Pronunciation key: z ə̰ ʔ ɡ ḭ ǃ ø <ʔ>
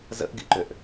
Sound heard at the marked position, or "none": ʔ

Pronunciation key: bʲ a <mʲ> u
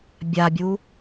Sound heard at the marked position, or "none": bʲ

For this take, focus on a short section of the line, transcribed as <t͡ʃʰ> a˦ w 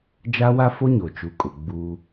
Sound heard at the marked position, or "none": d͡ʒ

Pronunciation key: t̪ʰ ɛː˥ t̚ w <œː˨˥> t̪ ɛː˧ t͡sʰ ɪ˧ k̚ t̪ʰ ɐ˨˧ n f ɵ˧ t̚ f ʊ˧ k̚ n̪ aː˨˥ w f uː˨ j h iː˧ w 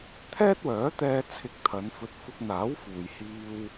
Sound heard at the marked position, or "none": œː˨˥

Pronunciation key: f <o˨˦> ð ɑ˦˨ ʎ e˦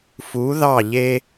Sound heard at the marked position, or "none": u˨˦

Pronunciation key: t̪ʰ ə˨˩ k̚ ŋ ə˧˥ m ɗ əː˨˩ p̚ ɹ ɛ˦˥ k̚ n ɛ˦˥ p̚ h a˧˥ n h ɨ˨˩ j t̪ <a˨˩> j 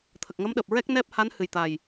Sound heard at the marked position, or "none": a˨˩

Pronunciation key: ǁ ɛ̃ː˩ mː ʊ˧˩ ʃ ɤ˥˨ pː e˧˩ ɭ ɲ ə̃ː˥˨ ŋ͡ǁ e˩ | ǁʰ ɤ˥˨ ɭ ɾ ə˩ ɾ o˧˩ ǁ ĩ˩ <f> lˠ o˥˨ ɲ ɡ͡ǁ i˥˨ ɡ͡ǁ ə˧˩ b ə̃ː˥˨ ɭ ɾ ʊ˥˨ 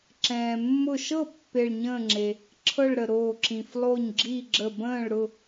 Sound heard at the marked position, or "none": f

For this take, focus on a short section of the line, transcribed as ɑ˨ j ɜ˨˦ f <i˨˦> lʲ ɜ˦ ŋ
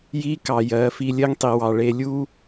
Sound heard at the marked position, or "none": i˦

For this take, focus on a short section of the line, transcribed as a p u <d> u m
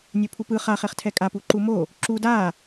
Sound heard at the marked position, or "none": ǃ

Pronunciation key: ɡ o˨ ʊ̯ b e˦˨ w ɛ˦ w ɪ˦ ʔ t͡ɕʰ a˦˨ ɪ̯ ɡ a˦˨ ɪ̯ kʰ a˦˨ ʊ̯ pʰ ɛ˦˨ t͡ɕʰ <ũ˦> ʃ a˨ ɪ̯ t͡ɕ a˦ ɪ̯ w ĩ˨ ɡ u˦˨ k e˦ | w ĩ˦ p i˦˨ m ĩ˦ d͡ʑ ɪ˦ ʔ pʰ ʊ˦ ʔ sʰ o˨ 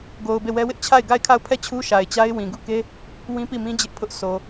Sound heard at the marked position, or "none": u˦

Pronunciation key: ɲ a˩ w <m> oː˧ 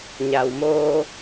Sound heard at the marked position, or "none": m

